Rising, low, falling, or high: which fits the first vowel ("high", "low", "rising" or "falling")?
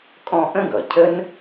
high